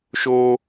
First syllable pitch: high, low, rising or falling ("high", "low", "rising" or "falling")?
high